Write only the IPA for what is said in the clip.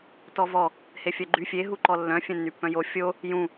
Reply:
tɔvɔ | hefʲœɡ͡ǃy fʲe ɦuǃɔlːœ̃ fʲœ̃nːypːœ̃jo fʲo | jũ

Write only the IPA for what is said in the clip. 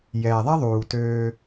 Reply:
jɛː˩ðˤɛ˥ðˤuː˩ tøː˧

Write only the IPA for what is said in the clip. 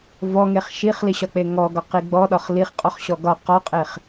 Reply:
vɔŋeχ ʃiχliɕɒk͡pe ŋɔɡɒqi ɡ͡bɔɗɒχ liχqʼɔχɕɔ ɡɒ qɒqʼeχ

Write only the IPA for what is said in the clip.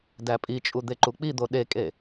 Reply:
dæpʼit͡ʃʼu d̪eǃuk͡pid̪o ɗekʼe

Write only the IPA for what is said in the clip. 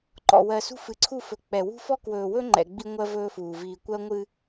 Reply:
ǃɔ̰˨wɜ˨ sṳ˦fɨ˨ǀʰu˦˨fɵ˨ k͡pɛ˨wṳ˦fɔ˦ kwɵː˨wɵ˦ ŋ͡ǃɛ̰˨ɡ͡bi˦ ŋʷɜ˦vɵː˦fuː˨ viː˨kʷɜ˦ ŋʷɨ˦

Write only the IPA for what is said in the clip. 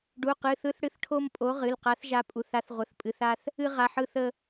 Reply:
ɖu˩˧˩qɨ˩˧˩ θɯ˨˥θɽɨ˨˥θʈʰo˧m pʼo˨˥ʁɨ˩˧˩lqa˨˥θ ʒa˨˥pʼu˩˧˩θ a˨˥θʁʷə˩˧˩θpʼɨ˩˧˩θ a˧θ | ɨ˧ ʁa˩˧˩ħɯ˧ θə˧

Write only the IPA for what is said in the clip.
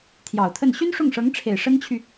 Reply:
t̪ʰjɑ˨˩ʊ̯t̪ʰə˥˩n ɕy˥nʂʊ˥˩ŋʂɤ˧˥ŋʈ͡ʂʰe˨˩ɪ̯ ʂə˥nt͡ɕʰy˨

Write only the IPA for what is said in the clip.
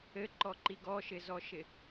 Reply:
ɘǃɔǃi ɡɔʃɪzɔʃɪ

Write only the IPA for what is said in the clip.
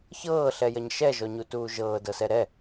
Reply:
çɤːɬɛjɐɲ ʃɛʒɔɲutuː ʒɤːdɤsɛ ɾɛ

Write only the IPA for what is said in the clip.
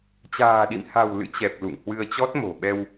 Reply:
t͡ɕa̤ː˨˩ɗḭ˧˨mha̤˨˩w lɨ̰˧˥t͡ɕɛ˨˩p̚ lṵ˧˨ŋhwɨ˧ə̯t͡ɕɔ˦˥t̚mo̤˨˩ ɓɛ˧w

